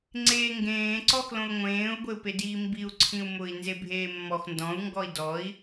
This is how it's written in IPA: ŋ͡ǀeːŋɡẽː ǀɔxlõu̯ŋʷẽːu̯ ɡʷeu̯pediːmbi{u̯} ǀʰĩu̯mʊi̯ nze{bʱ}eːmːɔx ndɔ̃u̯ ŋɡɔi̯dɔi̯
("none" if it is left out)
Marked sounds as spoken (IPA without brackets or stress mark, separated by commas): u̯, bʱ